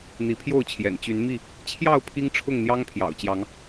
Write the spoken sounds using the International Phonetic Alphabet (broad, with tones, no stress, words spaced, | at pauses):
n̪i˨˦pʰjo˥˨ʊ̯t͡ɕʰjɛ̰˨˩n t͡ɕy˨˦nmi˥˨ | t͡ɕʰjɑ˥˨ʊ̯ pʰi˦ŋʈ͡ʂʰʊ˥˨ŋn̪jɑ˦ŋ pʰjɑ̰˨˩ʊ̯t͡ɕjɑ˨˦ŋ